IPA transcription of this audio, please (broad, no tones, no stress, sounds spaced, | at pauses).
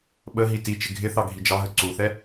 ɓ ə ɦ i t i t͡ʃ ɪ ɡʱ ɪ θ ɑ ɡʱ i d͡ʒ ɑ ɦ ə ǀ u θ ɛ